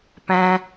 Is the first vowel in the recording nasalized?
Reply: yes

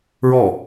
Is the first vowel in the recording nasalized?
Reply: no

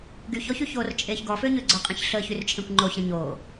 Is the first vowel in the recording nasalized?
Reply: no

